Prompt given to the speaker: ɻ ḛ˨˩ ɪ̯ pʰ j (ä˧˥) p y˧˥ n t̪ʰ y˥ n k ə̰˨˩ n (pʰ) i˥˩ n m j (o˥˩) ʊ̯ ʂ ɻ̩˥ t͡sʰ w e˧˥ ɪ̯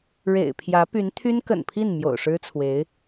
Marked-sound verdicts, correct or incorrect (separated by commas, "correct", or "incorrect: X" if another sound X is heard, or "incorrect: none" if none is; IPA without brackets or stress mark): correct, correct, incorrect: o̰˨˩